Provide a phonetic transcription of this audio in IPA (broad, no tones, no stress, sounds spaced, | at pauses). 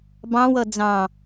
b ɑ̃ w ʌ d͡z ɑ̃